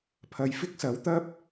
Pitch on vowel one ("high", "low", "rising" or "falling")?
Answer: low